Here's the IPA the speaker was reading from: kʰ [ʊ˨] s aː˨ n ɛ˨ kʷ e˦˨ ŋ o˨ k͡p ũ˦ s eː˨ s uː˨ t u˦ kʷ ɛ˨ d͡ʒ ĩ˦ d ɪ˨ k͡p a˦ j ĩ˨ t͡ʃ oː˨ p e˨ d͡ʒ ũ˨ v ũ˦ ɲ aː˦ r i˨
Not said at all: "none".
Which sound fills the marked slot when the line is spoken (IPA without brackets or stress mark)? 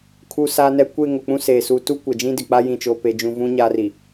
u˨